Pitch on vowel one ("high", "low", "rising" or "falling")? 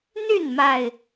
falling